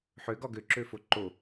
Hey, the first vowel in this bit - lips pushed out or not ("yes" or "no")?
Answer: yes